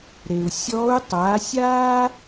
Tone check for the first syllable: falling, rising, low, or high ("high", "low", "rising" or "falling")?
low